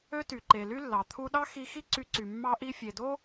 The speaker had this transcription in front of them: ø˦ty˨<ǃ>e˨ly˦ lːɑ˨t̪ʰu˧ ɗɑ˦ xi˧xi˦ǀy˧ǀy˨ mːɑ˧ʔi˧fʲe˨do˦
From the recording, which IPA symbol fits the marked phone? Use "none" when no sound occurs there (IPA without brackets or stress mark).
ǃ